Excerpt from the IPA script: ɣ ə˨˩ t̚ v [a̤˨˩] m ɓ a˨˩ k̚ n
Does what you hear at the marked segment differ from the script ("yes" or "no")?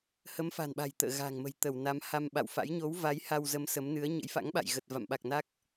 yes